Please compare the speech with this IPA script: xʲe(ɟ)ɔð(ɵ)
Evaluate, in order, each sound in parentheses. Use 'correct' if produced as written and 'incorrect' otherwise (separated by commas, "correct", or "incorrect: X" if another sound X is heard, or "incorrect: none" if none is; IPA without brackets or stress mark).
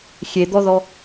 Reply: incorrect: d̪, incorrect: ɔ